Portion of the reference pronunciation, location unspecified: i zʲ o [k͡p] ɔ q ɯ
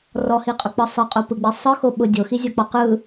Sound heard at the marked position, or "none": k͡p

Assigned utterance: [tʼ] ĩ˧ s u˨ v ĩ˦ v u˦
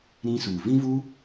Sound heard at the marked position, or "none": ɾ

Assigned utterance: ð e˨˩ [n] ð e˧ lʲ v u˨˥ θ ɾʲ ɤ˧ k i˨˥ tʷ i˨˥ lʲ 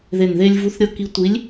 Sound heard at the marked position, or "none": n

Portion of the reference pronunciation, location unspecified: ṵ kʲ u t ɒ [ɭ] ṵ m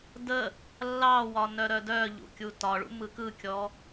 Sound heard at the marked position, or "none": ɭ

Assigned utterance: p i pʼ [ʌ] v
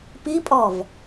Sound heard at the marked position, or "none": ɔ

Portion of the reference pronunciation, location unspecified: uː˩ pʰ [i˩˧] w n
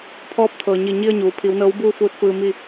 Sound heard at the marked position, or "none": i˩˧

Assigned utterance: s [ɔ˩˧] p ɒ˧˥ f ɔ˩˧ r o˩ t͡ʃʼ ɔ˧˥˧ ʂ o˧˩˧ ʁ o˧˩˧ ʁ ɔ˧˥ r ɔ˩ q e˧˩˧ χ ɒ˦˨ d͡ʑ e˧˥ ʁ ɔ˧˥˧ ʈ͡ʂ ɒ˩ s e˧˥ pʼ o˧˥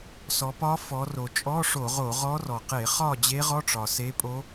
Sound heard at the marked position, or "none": ɔ˩˧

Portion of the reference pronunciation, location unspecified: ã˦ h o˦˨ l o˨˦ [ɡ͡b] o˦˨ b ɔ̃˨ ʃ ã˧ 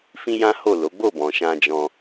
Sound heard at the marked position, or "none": ɡ͡b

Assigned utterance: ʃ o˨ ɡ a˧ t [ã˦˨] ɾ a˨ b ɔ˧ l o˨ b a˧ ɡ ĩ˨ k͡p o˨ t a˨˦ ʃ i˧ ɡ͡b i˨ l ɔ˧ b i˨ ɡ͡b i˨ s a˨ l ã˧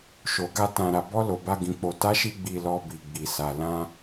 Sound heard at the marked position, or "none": ã˨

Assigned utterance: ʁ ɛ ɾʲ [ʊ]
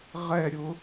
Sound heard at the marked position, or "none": ʊ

